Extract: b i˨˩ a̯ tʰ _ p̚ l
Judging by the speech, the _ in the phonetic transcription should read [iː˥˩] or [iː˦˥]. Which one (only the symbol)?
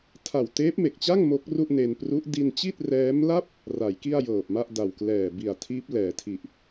iː˦˥